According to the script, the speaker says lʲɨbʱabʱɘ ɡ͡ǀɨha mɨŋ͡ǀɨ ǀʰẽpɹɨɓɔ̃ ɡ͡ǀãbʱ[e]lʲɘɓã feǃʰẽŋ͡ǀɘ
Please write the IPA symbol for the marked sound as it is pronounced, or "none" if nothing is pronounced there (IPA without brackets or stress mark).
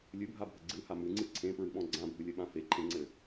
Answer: ɨ